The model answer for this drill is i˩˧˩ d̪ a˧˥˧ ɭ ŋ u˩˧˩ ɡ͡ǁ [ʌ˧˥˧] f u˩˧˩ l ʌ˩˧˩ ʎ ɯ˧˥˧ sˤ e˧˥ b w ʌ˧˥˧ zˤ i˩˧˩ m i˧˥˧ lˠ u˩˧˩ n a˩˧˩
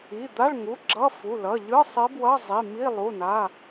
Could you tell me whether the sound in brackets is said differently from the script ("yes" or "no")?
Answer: no